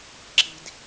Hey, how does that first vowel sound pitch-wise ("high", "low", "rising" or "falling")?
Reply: low